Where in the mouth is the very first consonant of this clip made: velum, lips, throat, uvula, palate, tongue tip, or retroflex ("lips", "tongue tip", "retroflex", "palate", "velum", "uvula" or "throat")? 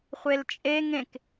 uvula